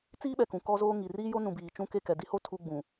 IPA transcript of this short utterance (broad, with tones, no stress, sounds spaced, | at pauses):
t͡s iː˦ ɓ ɛ˨ k ũ˨ k ɔ˦ z oː˦ ŋ i˨ r iː˦ j o˦ n ũ˨ b iː˨ t͡ʃ ũ˦˨ k e˦˨ k ɛ˨ d i˦ h o˦ tʰ u˦ ɡ͡b ũ˨